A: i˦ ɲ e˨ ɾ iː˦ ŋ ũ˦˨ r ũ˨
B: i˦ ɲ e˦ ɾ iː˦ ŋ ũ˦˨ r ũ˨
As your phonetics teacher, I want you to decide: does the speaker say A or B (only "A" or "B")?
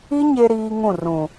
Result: B